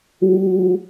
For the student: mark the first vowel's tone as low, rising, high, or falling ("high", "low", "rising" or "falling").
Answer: high